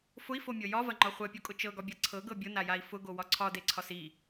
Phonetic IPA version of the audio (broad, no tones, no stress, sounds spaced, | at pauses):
f ʊ i̯ f o mʲ ɤ j ɒ v ɐ ŋ͡ǃ ɒ χʷ ɛ pʲ o kʼ ʊ t͡ʃ ɤ ɡ ɒ bʲ ɤ ǀʰ ɤ ɡ ɤ bʲ ʊ n a j a i̯ f ʊ ɡ o w ɒ ǀʰ ɒ d e ǀʰ ɒ s i